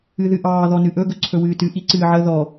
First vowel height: high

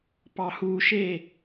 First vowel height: low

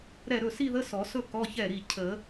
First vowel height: mid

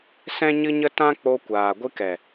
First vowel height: mid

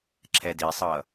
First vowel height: mid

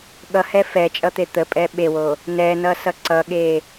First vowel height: mid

